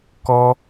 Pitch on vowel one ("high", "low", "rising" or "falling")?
high